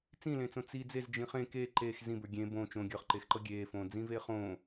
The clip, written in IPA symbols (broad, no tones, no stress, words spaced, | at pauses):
t͡sĩlẽt͡sõ t͡si d͡zez d͡ʒĩχẽ ke ǃex zĩbə˞ ɡʲẽ bõ t͡ʃõ ɡʲə˞χǃexǃɤ ɡʲeːfõː d͡zĩːveːχõː